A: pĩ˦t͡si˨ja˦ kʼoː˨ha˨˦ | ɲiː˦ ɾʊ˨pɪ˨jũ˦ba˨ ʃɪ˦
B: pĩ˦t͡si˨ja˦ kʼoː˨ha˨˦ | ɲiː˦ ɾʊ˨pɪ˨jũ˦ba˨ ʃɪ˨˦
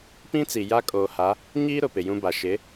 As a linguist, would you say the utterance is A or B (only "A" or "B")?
B